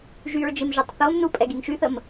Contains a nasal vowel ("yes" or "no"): no